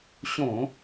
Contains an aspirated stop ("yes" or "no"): no